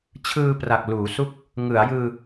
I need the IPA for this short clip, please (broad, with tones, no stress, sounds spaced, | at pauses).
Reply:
t͡ɕʰ ɯː˧ p r a˨˩ k̚ l uː˩˦ s u˥˩ k̚ | ŋ ɯ˩˦ a̯ j ɯː˧